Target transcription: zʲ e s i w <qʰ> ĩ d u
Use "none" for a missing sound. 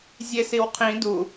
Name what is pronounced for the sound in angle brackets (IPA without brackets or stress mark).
qʰ